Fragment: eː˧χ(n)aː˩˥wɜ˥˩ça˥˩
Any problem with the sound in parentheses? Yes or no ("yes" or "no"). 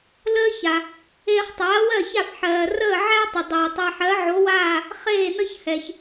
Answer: yes